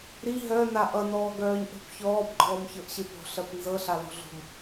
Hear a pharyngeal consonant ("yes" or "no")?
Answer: no